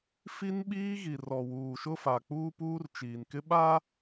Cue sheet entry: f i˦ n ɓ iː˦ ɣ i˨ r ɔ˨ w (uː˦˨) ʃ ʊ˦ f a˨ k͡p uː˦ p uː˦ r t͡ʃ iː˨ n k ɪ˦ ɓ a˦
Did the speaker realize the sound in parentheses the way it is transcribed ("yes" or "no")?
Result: no